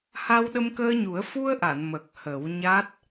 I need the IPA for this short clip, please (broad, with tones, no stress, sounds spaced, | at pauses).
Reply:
h a˧ w ɗ ə˧ m k əː˧ ɲ u˨˩˦ ə̯ f u˧ ə̯ ʔ a˨˩˨ n m ə˨˩ k̚ h ə˨˩˦ w ɲ a˦˥ t̚